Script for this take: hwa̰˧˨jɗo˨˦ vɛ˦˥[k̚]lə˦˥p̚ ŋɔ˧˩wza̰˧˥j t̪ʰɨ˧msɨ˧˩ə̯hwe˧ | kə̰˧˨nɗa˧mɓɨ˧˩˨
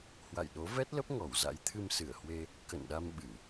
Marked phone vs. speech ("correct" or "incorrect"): incorrect